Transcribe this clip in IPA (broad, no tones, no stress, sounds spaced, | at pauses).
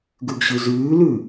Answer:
ɡ ʉ ɡ ɕ ʉ z ʉː l ʉ